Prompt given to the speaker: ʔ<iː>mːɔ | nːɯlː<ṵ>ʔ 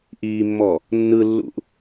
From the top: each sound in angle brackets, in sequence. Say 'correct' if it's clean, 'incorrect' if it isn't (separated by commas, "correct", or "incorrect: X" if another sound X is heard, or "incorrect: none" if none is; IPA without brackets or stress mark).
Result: correct, correct